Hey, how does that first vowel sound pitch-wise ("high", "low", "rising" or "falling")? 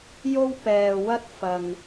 high